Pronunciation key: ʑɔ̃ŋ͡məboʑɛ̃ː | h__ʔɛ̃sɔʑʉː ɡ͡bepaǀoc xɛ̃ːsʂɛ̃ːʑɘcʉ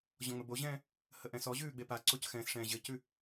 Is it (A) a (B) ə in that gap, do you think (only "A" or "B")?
B